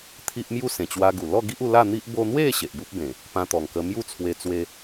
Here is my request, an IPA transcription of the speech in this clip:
t̪ʰ i˦ ʔ m j u˥˧ s ẽ˨˩ t͡ɕ w a˧ ɡ u˨˩ l ɔ˥˧ ɡ i˦ ʔ u˧ l a˥˧ n̪ i˦ ʔ b o˧ n̪ w e˥˧ ɕ e˨ ʔ b u˦ p̚ b ẽ˨˩ | p ã˧ t̪ ɔ˨˩ ŋ k ə˧ m j u˥˧ t͡sʰ w e˧ t͡s w e˧

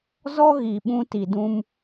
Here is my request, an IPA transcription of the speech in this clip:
z ɔ˦ ɣ i˨ ɓ ũ˧ t i˨ d ũ˧ m

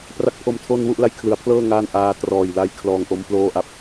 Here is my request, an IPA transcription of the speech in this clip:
p r a˦˥ k̚ pʰ o˧ m tʰ o˧ n w u˥˩ ʔ l a˧ j kʰ l ɯ˩˦ a̯ pʰ l ɤː˥˩ ŋ aː˥˩ n ʔ aː˧ t r ɔː˨˩ j l a˧ j kʰ l ɔː˧ ŋ ʔ o˦˥ m p l oː˥˩ ʔ a˥˩ p̚

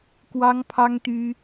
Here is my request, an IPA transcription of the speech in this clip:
k w ɑ˥ ŋ pʰ ɑ˥ ŋ t̪ y˥

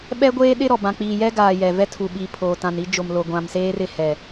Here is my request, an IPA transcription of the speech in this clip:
ɓ ɛ˦ ɡʷ eː˦ ɗ ɪ˦ ɾ ɔ˨ b ã˨ k͡p iː˨ j ɛ˦ ɡ aː˨ j ɛ˨ v ɛ˦ tʰ u˨ ɓ i˨ pʰ oː˨ t ã˨ n i˦ d͡ʒ o˨ m l o˨ ɡʷ ã˨ m s eː˦ r ɪ˦˨ h ɛ˨

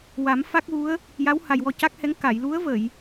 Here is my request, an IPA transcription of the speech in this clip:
w a˨˩˦ m f a˦˥ k̚ ɣ u˧˥ ə̯ | j a˧˥ w h a˨˩ j w ɔ˧ c a˦˥ k̚ h ɛ˧˥ ŋ k a˨˩˨ j l u˧˥ ə̯ v ə˨˩˨ j

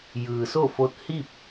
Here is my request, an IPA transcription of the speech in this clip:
j ɯː˩ s o˥˨ f o˧˥ t̚ h i˥˨ p̚

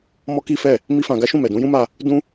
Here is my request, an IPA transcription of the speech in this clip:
m ɔ˦ k i˦ f ɛ˦˨ | m i˦ f ã˧ ɡ a˦ ʃ ũ˦˨ m ɛ˨ d ũ˨˦ j ũ˦ m a˧ | d ũ˧

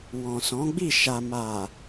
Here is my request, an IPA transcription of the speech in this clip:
w ɔ̃˨ s ɔ̃˨˦ ɡ͡b i˦˨ ʃ a˨ m a˨

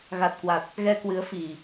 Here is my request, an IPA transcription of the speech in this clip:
ɣ a˨˩ t̚ k w a˨˩ t̚ | ɣ ɛ˧ k w ɨ˨˦ ə̯ f i˨˩

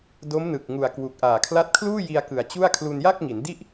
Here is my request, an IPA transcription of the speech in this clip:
d o˦˥ m n ɯ˨˩ k̚ ŋ u˨˩ a̯ k w u˨˩ k̚ ʔ aː˨˩ kʰ l a˦˥ t̚ kʰ l uː˥˩ j i˧ a̯ k ɯ˨˩ a̯ t͡ɕ u˥˩ a̯ kʰ l u˧ n j a˥˩ k̚ ŋ i˩˦ n d i˥˩ ʔ

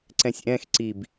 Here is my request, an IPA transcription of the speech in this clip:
ǀ ɛ̃ sʲ ʔ ɛ̃ x ǀ i b

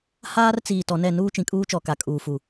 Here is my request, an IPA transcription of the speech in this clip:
h aː˦ r t͡s iː˨ t ɔ˨ n ɛ˦˨ n uː˦ t͡ʃ ĩ˨ kʼ uː˦ t͡ʃ ɔ˨ k a˨ kʼ uː˨ f u˨

